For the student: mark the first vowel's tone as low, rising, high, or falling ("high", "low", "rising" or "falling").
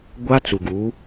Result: high